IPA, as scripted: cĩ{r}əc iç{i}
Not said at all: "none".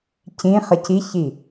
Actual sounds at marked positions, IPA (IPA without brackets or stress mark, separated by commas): χ, i